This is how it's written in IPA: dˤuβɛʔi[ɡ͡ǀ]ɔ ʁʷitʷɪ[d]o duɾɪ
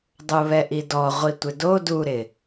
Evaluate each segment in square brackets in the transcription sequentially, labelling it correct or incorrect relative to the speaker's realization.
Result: incorrect, correct

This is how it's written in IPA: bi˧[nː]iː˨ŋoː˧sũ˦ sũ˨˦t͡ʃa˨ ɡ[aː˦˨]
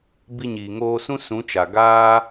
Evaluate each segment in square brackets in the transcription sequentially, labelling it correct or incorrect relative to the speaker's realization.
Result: incorrect, incorrect

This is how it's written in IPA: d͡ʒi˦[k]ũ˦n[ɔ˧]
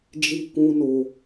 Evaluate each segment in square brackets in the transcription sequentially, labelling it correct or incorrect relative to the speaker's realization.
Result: correct, incorrect

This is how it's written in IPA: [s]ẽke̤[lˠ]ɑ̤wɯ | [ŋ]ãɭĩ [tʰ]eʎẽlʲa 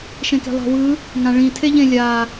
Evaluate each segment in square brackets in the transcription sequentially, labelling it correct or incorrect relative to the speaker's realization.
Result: incorrect, correct, correct, correct

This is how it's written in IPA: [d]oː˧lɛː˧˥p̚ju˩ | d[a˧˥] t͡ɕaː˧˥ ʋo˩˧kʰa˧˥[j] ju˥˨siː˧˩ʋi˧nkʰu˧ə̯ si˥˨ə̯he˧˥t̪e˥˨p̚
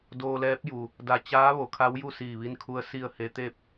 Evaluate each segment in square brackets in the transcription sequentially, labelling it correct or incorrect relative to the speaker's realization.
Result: correct, incorrect, incorrect

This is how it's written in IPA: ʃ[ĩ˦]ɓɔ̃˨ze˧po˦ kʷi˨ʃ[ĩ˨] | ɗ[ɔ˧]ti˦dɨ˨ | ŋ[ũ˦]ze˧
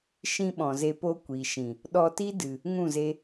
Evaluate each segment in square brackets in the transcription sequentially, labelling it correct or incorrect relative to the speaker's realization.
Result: correct, correct, correct, incorrect

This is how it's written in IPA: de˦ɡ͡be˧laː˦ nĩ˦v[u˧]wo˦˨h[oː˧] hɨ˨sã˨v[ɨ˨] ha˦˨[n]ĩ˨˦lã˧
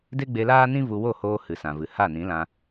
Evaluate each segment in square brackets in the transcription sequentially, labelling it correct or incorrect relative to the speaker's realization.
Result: correct, correct, correct, correct

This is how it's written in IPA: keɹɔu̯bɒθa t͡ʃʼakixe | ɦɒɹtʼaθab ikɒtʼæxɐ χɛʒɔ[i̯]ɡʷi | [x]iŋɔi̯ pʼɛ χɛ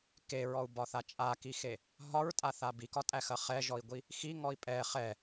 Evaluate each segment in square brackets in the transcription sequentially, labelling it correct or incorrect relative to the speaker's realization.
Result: correct, correct

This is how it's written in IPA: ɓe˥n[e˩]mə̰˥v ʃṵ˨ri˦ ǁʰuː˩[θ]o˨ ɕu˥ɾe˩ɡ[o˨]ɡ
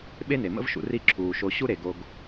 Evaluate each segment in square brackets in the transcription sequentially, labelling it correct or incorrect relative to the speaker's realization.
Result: correct, incorrect, correct

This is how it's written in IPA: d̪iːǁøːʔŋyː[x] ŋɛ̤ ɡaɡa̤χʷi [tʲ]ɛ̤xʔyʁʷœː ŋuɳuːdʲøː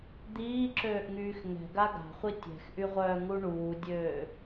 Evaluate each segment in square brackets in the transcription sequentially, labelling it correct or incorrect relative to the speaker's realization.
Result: correct, correct

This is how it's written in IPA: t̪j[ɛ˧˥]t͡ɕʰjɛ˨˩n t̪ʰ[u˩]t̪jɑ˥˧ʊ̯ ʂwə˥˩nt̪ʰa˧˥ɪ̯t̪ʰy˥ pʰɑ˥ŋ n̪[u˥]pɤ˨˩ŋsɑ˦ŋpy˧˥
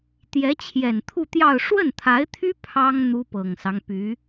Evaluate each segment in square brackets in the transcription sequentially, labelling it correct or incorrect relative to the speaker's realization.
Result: correct, incorrect, correct

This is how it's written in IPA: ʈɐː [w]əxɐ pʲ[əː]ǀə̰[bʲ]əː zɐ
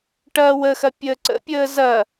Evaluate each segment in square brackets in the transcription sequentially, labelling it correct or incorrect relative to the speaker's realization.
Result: correct, correct, incorrect

